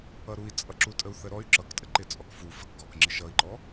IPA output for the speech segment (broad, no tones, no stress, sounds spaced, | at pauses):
ʌ ɾ u i̯ t͡sʼ ʌ ǁ u tʼ ə u̯ θ ə ɾ ɔ y̯ ǁ ʌ k tʼ ə ǃ ɪ t͡sʼ ɔ k f u f ə k ɡ ɒ k ŋ͡ǁ ɪ ʃ ʌ i̯ ǃ ɔ